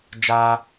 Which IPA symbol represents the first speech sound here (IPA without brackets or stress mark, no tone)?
d͡ʒ